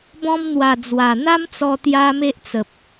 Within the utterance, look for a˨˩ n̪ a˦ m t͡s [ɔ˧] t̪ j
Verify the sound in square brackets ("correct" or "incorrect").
correct